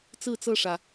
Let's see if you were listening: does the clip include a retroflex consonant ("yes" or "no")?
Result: yes